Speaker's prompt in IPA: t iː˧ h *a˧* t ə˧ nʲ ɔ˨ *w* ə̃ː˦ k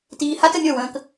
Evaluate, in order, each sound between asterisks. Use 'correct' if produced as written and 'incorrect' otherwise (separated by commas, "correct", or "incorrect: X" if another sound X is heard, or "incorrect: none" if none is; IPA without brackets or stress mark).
incorrect: a˦, correct